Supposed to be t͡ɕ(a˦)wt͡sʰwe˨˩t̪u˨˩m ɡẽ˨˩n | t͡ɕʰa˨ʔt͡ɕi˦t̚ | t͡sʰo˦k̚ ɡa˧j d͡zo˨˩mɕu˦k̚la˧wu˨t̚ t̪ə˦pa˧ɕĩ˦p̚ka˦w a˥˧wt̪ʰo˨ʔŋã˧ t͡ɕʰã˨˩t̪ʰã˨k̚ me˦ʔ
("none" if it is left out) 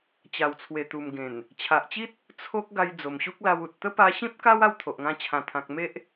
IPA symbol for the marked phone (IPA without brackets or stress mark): a˨˩